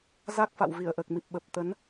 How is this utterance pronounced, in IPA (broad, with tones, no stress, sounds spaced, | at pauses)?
z a˦˥ k̚ f a̰˧˨ w v i˧˩ ə̯ ʔ əː˨˩ k̚ m i˨˩ p̚ ɓ ə˨˩ p̚ t̪ ə˨˦ n